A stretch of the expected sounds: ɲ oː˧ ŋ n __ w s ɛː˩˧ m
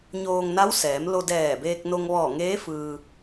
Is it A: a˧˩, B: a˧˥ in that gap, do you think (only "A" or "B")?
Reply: B